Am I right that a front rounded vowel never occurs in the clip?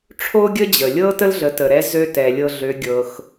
no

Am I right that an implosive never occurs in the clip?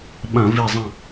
no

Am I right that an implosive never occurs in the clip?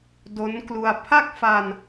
yes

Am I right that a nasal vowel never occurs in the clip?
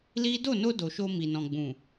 no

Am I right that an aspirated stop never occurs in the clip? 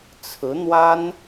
no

